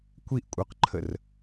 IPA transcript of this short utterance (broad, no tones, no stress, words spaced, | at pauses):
kʷiʔkʷʼœqǃʰər